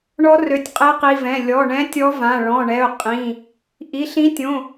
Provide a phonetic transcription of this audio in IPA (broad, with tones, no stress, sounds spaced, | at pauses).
ɳ ɔ˧˥ r ø˩˧˩ tʲ qʼ e˧˥ q i˩˧˩ v ɛ̃˩˧˩ lʲ ɔ˩˧˩ ɳ ɛ̃˧˥ tʲ ɔ˧˥ v ã˩˧˩ ɭ ɔ̃˩˧˩ ɳ ɛ˩˧˩ ʊ̯ qʼ ĩ˩˧˩ | ʔ i˩˧˩ ɬ ĩ˧˥ tʲ õ˩˧˩